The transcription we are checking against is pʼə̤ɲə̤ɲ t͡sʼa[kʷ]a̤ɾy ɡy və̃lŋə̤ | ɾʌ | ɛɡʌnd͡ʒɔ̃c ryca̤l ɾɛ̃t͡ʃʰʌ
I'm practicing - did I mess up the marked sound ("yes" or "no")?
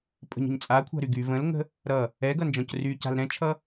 yes